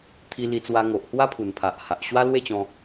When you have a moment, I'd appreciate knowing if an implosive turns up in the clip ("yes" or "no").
no